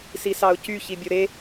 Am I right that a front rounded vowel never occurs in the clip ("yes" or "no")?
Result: no